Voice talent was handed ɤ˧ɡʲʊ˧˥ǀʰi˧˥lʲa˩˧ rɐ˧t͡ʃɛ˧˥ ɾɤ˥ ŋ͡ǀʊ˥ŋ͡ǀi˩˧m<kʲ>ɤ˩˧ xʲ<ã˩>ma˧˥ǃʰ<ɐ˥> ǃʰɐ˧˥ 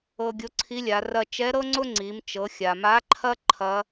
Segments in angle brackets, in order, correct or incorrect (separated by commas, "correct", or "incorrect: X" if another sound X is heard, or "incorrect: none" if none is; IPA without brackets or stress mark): incorrect: t͡ʃ, incorrect: a˩, correct